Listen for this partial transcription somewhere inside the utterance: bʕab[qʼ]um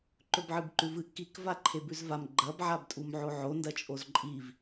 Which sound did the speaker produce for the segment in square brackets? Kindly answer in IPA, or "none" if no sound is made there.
tʼ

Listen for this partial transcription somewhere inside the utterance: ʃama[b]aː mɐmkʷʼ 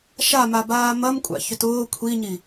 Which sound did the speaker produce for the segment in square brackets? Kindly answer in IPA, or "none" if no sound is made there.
b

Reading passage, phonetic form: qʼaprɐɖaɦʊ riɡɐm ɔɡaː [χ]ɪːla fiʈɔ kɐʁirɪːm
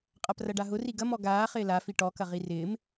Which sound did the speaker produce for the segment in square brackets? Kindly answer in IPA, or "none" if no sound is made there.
χ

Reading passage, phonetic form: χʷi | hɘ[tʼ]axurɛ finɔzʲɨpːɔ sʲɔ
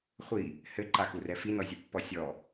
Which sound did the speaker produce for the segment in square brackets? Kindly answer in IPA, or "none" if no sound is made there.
ǃ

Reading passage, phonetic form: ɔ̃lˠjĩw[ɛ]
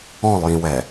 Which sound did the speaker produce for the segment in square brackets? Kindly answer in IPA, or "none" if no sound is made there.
ɛ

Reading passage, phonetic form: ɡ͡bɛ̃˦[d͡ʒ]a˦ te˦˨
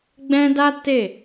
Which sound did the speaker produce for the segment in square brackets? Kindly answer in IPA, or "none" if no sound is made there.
d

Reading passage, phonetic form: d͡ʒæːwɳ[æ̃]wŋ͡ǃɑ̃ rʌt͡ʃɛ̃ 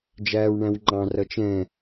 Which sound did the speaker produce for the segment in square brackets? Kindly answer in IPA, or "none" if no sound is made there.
æ̃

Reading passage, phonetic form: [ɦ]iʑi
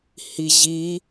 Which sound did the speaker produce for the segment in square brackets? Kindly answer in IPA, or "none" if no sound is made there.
h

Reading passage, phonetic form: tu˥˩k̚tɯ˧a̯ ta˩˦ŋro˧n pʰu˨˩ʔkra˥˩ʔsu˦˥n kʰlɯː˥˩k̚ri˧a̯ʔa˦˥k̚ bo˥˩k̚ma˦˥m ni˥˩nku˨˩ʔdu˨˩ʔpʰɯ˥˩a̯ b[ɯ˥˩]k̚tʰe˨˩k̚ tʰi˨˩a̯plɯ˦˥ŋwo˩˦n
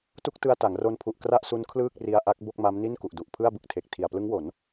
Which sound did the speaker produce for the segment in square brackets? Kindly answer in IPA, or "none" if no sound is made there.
ɯ˨˩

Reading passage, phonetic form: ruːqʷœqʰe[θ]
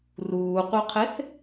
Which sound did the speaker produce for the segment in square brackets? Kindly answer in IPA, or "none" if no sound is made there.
θ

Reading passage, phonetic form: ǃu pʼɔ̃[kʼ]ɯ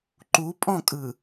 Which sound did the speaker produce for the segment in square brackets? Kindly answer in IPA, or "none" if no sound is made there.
kʼ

